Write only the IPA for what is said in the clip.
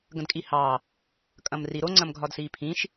ɡ ə̃ d kʼ i h ɑ | kʼ ɐ̃ m r i ɾ o ŋ͡ǀ ɐ̃ m ɡʱ ɒ d s iː pʰ ĩ ʃ

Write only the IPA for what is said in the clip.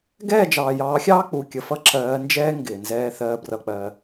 ɡ ɛː˦˨ d͡ʒ ɑː˨ j ɑː˨˦ xʲ ɑː˦ k͡p u˨ kʲ ə˨ f ʌ˦ ǁ ɜː˨˦ n d͡ʒ ɛː˦ ŋ ɡ ɪː˨ n z ɛː˦ θ ɜː˦ b r ʌ˧ k͡p ɜː˧

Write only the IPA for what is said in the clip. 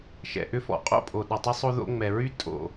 ʃ ɛ̰˩ ʔ ʏ˦ f ɔ̰˩ qʼ o̰˥ pʼ o˩ ɗ ə˨ tˤ ʏ˥ sˤ o˥ ð o̰˥ ŋ͡m ɛ˨ ɹ y˥ tʼ o̰˨

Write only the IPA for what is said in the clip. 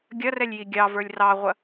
ɡʲ ɐ r ɛ lʲ j i ɡʲ ɑ v ə˞ lʲ r ɑ ʁʷ ɐ

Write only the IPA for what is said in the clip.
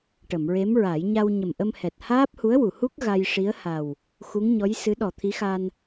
ʈ ə˨˩˨ m ɹ e˧˥ m ɹ a˨˩˦ j ɲ a˧ w ɲ ə˨˩ m ʔ ə˧ m h ɛ˨˩ t̚ h aː˦˥ p̚ h u˧˥ ə̯ w u˨˩˨ h u˦˥ k̚ ɣ a˧ j ʂ i˧˥ ə̯ h a˨˩ w | x u˧˥ ŋ ɲ ɔ˧˥ j s ɨ˧˥ ɗ ɔ˨˩ t̪ʰ i˧˥ x a˧ n

